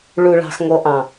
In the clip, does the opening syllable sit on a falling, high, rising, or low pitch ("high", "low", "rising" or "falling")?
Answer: low